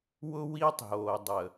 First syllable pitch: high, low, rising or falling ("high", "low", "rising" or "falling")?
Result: high